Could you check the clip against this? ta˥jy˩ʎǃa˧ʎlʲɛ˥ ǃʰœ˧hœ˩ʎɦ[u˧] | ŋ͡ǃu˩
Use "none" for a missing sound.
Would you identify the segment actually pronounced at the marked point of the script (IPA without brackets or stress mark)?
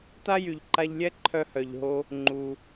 o˧